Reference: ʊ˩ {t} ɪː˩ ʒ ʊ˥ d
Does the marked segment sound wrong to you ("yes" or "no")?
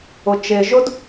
yes